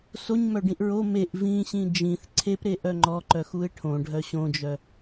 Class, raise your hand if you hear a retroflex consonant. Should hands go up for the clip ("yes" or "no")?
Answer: yes